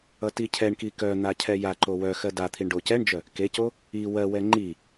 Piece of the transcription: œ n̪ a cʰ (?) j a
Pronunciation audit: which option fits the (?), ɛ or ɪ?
ɛ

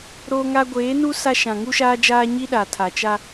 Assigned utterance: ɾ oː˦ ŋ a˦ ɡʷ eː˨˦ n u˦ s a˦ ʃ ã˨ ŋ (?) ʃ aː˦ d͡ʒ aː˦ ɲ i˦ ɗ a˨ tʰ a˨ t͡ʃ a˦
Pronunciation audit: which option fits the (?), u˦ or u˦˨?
u˦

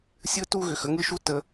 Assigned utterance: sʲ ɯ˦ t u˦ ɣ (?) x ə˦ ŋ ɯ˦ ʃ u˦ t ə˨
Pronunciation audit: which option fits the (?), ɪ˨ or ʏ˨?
ʏ˨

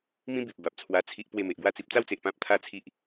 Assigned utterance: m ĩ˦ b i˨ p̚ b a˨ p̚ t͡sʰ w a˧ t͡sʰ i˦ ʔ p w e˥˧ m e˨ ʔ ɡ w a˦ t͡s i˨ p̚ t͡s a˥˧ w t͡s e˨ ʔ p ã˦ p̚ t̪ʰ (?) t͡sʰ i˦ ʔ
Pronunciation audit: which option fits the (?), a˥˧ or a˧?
a˥˧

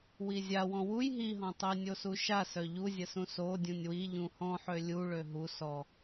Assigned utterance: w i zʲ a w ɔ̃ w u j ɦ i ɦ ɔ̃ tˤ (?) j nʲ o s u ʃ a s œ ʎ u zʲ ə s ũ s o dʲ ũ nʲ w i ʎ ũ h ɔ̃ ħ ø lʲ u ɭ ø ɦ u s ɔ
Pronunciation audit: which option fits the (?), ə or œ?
ə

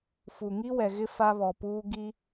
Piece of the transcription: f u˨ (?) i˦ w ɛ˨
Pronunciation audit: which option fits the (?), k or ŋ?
ŋ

